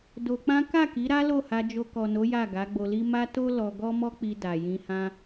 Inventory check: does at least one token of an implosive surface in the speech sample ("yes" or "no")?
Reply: no